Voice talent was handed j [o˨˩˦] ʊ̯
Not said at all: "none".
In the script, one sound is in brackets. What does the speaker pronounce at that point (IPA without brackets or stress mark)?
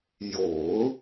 o˨˩˦